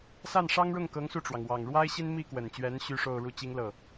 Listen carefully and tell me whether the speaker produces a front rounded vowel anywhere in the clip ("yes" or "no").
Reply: yes